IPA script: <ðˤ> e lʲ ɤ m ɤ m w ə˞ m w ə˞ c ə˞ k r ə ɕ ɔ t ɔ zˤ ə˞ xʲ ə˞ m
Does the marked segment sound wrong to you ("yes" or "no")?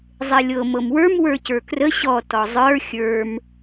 yes